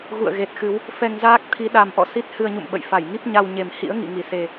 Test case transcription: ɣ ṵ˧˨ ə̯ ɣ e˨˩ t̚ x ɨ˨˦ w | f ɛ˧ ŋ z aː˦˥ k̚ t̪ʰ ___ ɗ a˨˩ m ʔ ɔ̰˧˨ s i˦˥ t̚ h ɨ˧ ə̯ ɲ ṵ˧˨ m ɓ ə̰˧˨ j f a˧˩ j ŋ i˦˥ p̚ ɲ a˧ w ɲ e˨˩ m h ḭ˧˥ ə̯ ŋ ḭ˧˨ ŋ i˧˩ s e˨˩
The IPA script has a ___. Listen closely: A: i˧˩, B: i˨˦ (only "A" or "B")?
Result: B